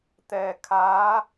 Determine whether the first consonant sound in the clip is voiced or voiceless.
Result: voiceless